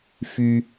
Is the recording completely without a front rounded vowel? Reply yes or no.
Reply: no